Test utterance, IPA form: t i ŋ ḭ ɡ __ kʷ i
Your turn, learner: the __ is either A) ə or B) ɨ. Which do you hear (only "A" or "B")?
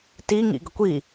A